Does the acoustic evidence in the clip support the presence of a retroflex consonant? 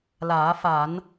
no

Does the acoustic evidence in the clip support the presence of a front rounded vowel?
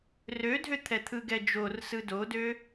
yes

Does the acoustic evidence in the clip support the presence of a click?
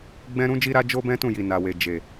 no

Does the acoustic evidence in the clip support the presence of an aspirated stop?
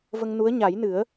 no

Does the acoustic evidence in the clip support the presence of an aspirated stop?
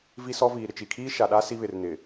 yes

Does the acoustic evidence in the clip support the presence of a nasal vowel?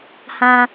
yes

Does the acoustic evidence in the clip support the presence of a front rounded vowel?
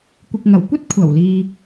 no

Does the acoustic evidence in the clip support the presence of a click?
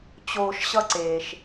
yes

